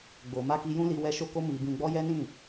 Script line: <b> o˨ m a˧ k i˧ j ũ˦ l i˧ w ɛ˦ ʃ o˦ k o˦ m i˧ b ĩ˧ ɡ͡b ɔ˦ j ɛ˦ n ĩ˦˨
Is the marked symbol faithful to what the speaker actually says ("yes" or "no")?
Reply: no